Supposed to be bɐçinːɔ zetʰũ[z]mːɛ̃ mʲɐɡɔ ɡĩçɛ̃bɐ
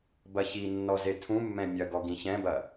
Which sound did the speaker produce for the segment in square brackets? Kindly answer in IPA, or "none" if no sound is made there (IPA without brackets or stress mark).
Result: none